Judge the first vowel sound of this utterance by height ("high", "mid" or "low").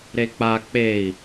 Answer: mid